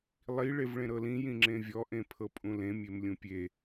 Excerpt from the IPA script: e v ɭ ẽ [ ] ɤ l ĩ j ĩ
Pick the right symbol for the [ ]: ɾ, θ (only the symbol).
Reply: ɾ